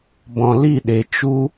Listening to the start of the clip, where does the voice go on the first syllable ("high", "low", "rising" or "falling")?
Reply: low